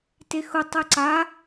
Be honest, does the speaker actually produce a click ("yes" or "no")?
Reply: yes